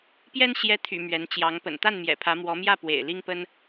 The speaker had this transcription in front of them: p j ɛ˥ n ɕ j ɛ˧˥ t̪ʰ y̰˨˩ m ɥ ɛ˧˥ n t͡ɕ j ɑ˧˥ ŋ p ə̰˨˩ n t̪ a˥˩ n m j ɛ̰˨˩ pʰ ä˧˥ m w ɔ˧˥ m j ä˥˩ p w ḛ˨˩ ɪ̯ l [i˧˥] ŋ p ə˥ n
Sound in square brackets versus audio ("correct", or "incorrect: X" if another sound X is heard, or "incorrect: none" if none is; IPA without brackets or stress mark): incorrect: i˥